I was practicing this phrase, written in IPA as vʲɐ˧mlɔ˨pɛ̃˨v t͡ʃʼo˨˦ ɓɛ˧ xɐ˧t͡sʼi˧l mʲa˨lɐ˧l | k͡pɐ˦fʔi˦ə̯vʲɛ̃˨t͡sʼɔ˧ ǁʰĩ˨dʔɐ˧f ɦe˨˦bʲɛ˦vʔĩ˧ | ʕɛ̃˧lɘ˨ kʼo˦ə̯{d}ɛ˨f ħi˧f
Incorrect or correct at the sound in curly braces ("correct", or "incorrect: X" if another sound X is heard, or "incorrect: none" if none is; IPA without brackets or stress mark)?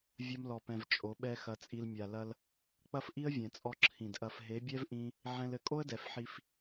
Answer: correct